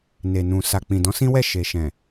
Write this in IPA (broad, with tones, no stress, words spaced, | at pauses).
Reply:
ne˨nũ˨ sa˨k͡pĩ˨dɔ̃˨˦ sĩ˦wɛ˦˨ ʃe˨ʃɛ̃˨